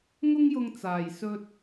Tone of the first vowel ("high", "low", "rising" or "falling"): high